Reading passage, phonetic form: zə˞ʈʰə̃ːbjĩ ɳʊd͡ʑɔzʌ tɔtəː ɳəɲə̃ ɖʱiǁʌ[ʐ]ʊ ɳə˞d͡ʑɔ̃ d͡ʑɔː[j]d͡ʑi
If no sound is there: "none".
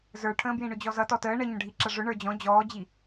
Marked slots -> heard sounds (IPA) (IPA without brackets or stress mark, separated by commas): ʐ, none